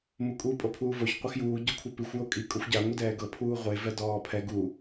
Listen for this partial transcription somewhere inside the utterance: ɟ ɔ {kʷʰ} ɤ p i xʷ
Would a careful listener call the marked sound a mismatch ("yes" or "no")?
no